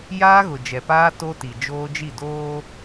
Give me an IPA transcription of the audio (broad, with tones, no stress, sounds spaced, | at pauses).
j aː˦ ɣ ʊ˨ d͡ʒ ɛ˨ p aː˦ t o˦ t i˨ d͡ʒ oː˦ d͡ʒ i˦˨ d oː˦